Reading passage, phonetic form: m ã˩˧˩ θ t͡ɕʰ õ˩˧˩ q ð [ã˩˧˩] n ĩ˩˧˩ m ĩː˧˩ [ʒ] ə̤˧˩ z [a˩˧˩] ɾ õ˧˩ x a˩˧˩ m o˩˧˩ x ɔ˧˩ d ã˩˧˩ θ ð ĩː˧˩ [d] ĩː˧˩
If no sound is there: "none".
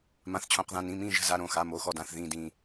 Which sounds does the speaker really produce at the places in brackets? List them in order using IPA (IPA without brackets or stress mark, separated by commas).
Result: ã˩˧˩, ʒ, a˩˧˩, d